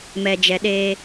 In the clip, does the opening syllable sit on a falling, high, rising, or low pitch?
low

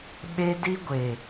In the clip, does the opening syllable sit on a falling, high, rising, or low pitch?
high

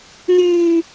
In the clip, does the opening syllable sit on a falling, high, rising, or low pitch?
high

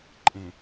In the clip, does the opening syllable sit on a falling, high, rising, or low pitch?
low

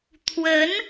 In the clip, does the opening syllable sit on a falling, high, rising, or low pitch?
rising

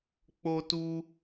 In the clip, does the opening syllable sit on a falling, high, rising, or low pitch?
high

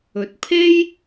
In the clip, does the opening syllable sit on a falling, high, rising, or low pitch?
low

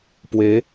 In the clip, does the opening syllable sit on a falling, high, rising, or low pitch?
rising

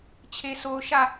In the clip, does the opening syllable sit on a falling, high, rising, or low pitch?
low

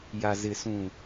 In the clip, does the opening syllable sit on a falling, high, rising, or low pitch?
low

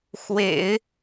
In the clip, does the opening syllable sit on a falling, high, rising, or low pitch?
low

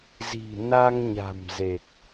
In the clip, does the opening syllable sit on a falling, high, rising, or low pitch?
low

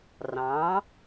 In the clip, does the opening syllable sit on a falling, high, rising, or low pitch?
rising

